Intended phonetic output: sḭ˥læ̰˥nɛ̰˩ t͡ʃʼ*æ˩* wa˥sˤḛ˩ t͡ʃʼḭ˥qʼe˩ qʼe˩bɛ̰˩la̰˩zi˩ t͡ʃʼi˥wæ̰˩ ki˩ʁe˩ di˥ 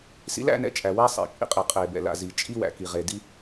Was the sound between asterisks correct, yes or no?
yes